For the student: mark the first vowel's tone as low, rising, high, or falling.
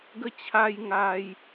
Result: high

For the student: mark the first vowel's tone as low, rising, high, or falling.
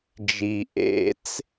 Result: low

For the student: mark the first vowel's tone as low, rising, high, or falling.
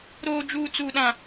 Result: high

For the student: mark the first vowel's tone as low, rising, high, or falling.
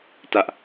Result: high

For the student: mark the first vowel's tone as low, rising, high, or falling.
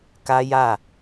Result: high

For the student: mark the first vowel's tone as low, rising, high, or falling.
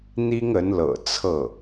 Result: high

